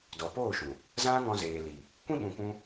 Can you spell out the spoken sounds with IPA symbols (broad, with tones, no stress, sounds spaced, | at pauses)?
d ɔ˨ p oː˦˨ ʃ ũ˨ | z ã˦ ŋ ɔ̃˧ z eː˨ l i˨ | kʷ ĩ˦ ɓ ũ˧ kʷ ũ˦